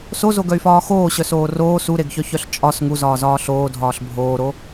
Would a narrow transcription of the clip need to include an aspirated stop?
no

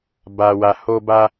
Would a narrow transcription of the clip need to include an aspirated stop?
no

